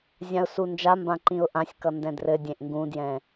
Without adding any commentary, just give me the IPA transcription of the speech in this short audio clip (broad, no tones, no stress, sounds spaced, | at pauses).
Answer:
zʲ ã ʊ̯ s u n d͡ʒ a m b ã ǃ ĩ ʊ̯ ʔ ã sʲ k ʌ n d ɛ̃ d r ɘ dʲ ẽ ʔ ŋ ɡ ũ d j ɛ̃